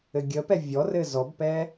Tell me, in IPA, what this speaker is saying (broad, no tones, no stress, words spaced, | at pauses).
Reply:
ɘɡʲəpɛ vʲɔrɘ zɔbpɛ